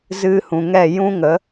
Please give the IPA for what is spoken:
z ɨ˧ h ũ˨ ŋ ɛ˦˨ j ũ˦ ŋ ə˨˦

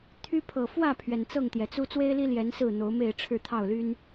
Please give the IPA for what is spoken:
t̪ʰ y˦ pʰ ɤ˨˩ f w ä˥˨ pʰ ɥ ɛ˩ n t͡s ɤ˥˨ ŋ t̪ j ɛ˩ t͡s u˦ t͡s w e˦ ɪ̯ l i˦ l j ɛ˨˦ n s ɹ̩˥˨ n̪ o˨˦ ʊ̯ m e˥˨ ɪ̯ ʈ͡ʂʰ ɻ̩˥˨ t̪ʰ ɑ˥˨ ʊ̯ l y˦ n

